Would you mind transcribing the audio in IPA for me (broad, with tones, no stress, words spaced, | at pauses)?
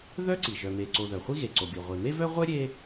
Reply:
ðœ˥ǀi˩ ʒœ˩me˩ǀo˩ ðœ˩χʷi˥ ɣe˩ǀo˩ɡʲo˩ʁʷe˩ me˥vœ˥ ʁʷœ˥ ɾʲe˥